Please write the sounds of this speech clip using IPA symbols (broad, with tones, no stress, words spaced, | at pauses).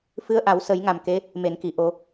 fɨ˧˥ə̯ʔa˨˩˦w sə˨˩˦jŋa˨˩m ke˧˥ | me˨˩˨nki˨˩˨ʔo˨˩˦